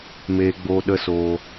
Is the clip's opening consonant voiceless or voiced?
voiced